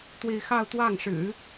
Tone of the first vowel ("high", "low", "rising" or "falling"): falling